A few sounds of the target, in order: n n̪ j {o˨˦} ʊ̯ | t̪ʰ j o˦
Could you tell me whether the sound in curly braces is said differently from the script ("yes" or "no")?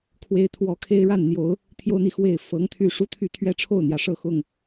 no